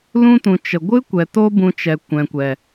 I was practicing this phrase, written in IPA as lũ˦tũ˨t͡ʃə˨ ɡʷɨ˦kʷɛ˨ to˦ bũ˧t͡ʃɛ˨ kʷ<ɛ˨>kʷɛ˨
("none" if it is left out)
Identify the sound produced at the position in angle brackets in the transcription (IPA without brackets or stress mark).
ɛ̃˨